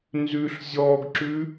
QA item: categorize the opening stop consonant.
plain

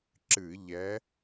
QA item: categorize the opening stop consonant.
click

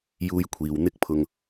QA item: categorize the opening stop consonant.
aspirated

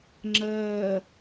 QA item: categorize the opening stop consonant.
click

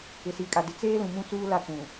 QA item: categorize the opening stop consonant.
ejective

